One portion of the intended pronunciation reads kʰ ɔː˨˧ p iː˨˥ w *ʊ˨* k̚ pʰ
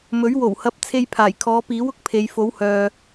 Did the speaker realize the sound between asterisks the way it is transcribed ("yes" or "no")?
no